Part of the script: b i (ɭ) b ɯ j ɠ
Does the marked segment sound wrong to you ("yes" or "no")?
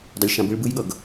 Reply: no